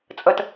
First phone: t͡sʼ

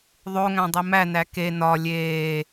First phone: ðˤ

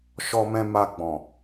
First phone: ʃ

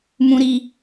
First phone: m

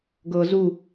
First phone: ɡ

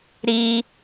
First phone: ɾ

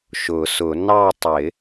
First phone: ʃ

